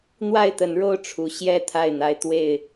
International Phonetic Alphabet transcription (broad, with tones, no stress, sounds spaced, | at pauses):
n̪ w a˥˨ ɪ̯ t̪ ə˨˦ n ɻ o˥˨ ʊ̯ ʈ͡ʂʰ u˨˦ ɕ j ɛ˥˨ t̪ʰ a˥˨ ɪ̯ n̪ a˦ ɪ̯ t̪ w e˥˨ ɪ̯